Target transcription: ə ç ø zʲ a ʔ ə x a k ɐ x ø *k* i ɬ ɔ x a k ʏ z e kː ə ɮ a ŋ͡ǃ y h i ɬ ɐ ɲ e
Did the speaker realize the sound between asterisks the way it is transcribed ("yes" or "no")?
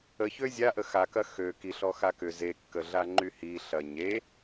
yes